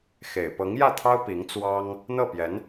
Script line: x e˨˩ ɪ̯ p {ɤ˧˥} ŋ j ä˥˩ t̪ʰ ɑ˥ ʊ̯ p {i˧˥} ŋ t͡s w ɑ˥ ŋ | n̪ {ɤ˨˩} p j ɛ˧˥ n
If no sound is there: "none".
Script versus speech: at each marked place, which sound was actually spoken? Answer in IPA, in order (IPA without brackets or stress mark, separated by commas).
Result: ɤ˧˥, i˧˥, ɤ˥˩